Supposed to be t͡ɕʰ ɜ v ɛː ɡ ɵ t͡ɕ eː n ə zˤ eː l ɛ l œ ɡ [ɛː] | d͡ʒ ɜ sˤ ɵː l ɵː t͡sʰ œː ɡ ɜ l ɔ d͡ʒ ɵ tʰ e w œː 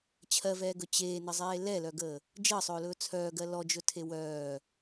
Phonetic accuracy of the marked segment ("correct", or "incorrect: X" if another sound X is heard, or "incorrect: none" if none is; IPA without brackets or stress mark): incorrect: əː